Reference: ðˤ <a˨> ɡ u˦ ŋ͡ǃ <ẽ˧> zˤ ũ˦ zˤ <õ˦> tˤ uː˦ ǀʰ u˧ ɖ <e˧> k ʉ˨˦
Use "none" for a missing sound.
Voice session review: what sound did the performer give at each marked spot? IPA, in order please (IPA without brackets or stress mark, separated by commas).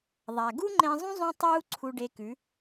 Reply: a˨, ẽ˧, ũ˦, e˧